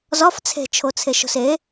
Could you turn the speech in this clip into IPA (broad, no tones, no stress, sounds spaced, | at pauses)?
z ɒ f t͡sʰ e̤ t͡ʃʰ o t͡sʰ e ʃ o̤ s e